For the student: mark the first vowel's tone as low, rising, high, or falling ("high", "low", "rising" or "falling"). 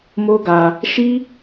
high